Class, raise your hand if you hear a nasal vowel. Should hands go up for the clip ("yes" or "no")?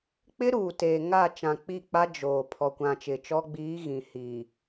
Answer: yes